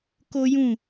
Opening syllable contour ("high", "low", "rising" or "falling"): high